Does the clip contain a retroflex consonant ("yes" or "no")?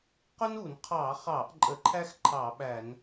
no